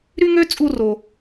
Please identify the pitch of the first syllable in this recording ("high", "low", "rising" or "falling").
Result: high